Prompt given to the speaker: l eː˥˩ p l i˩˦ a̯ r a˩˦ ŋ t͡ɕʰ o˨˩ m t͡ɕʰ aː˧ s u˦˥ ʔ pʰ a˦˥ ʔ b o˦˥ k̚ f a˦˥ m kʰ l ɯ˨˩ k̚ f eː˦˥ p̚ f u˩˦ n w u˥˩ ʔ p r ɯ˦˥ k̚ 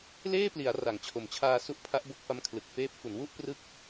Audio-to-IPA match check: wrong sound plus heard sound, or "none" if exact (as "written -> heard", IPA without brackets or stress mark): none